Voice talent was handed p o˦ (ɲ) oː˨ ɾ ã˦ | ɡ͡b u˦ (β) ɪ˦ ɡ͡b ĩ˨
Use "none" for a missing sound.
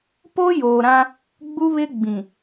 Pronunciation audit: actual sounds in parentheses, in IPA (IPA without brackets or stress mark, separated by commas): j, β